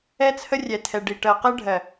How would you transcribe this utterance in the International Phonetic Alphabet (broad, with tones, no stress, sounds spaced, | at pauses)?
ɛ˦ t͡sʰ ə˦ rʲ ɛ˨ tʰ ɛ˨ ɖ i˨ ʈ ɜ˨ q ɜ˦ ɖʱ ɜ˨